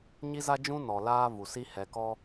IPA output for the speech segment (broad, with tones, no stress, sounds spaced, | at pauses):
ɲ i˦ z a˦ d͡ʒ ũ˦ n ɔ˨ l aː˦ v u˨ s i˦ h ɛ˨ k ɔ˦